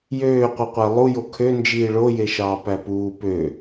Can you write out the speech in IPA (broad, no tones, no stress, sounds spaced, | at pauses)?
j øː qʷ ɯ qʷ æ lˠ u j o kʰ ø n d͡ʒ iː ɭ o j e ʃ ɑː p æ p uː p ø